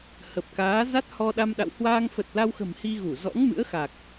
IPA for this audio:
h ə˨˩ p̚ k aː˨˦ z a˦˥ t̚ h ɔ˧ ɗ a˧ m ɗ a̰˧˨ w h w aː˧ ŋ f ə˨˩ t̚ l a˧ w x ə̤˨˩ m h i˧ ɣ u˧˩ z ɔ̰˧˥ ŋ m ɨ̰˧˥ ə̯ x a˨˩ k̚

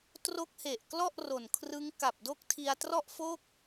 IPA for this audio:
t r o˦˥ k̚ h e˨˩ ʔ k l ɔ˥˩ ʔ r o˨˩ n kʰ r ɯ˦˥ ŋ k a˨˩ p̚ d o˦˥ k̚ tʰ i˧ a̯ t r ɔ˥˩ ʔ f o˥˩ k̚

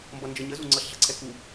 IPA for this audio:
m b ʌ n d͡ʒ ɤ ɲ ə z u ŋ͡ǀ ɤ ɬ ɮ ʌ ǀʰ ɛ k u

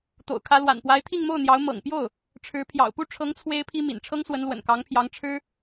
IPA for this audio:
t̪ o̰˨˩ ʊ̯ kʰ ä˧˥ l w a̰˨˩ n p w a˧˥ ɪ̯ t̪ʰ i˥˧ ŋ m o˥˩ ʊ̯ n̪ j ɑ˧˥ ʊ̯ m ɤ̰˨˩ ŋ p j o˥˩ ʊ̯ | ʈ͡ʂʰ ɻ̩˧˥ pʰ j ɑ̰˨˩ ʊ̯ p u˥˩ ʈ͡ʂʰ ɤ˧˥ ŋ t͡sʰ w e˥ ɪ̯ pʰ i˥ m ḭ˨˩ n ʈ͡ʂʰ ɤ˥ ŋ s w ə˧˥ n l w ə̰˨˩ n k ɑ˧˥ ŋ pʰ j ɑ˧˥ ŋ ʈ͡ʂʰ ɻ̩˥

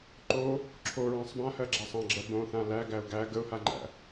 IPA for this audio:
ǃ o | ǁʰ o ɹ ã sˤ b ã h ɜ ɡ͡ǁ æ sˤ ã ɡ͡ǁ ɜ b õ θ ã l æ ɡ æ ʊ̯ ɡ æ ɡ ə ʊ̯ h a ŋ͡ǃ æ̰

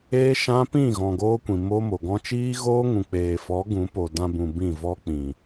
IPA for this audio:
eː˦ ʃ ã˦ p ĩ˦˨ ɣ ɔ̃˨ ɡ oː˦ kʷ ĩ˨ m o˦ m o˨ ɡ ɔ̃˧ t͡ʃ iː˦ ɣ oː˦ ŋ ũ˨ k͡p eː˨ f ɔ˨˦ ɡ ũ˨˦ p o˨ d ã˧ b ũ˨ b ĩ˦˨ v ɔ˦ k͡p ĩ˨

